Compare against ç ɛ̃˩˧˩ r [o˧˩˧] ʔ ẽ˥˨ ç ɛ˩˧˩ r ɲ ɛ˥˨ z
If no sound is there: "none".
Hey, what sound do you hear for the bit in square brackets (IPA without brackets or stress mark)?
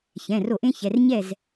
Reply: o˧˩˧